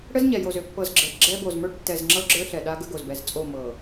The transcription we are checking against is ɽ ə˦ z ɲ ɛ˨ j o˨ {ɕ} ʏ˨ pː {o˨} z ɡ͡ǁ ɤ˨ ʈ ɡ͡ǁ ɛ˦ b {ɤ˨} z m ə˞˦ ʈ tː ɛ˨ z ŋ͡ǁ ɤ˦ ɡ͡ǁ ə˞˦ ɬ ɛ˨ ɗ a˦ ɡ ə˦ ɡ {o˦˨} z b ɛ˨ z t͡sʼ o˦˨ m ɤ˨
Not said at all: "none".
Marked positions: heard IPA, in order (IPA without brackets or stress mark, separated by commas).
z, ɤ˨, o˨, o˨